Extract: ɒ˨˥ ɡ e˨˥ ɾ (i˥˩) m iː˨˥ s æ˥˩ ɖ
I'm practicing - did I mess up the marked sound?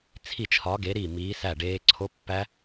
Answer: no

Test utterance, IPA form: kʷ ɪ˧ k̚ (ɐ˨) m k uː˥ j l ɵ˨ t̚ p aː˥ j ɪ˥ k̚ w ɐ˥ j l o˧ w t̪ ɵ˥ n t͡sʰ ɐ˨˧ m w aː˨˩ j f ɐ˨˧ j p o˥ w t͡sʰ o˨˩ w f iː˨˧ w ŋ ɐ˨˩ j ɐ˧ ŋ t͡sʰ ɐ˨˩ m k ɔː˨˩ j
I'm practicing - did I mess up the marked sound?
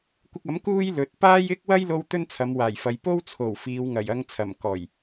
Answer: yes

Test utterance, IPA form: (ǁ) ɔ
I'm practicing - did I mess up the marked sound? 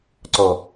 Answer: yes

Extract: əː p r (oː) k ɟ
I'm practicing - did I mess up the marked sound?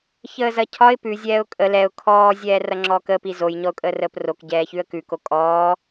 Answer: yes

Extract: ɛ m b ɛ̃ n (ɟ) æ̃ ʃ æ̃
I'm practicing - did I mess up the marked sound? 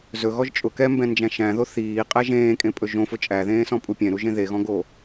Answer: yes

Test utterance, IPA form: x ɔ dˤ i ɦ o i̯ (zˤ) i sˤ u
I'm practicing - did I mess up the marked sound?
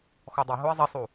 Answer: no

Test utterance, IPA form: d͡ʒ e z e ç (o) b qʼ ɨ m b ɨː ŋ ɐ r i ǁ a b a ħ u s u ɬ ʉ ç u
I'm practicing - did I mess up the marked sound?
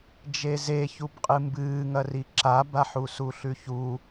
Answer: yes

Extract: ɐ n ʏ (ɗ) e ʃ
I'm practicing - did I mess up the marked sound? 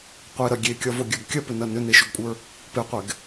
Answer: yes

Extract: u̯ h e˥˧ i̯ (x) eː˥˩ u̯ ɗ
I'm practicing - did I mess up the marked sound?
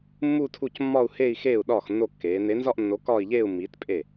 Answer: no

